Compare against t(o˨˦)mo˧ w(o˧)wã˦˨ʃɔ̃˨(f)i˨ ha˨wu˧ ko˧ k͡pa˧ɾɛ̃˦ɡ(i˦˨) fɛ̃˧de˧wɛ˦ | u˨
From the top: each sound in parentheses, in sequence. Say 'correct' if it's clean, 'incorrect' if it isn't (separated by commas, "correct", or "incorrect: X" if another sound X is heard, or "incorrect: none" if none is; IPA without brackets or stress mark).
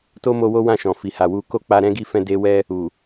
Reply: incorrect: o˦, incorrect: o˦, correct, correct